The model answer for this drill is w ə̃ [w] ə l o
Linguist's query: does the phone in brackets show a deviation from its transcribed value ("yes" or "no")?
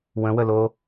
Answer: no